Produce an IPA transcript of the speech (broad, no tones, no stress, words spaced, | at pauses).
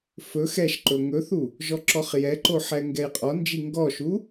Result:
fɵ xɛʃ ǃɵŋɵθu | ʒɔǁɔχjɛǃo ħɛŋɡɛjqʼɔnd͡ʒi ŋɡɔʃu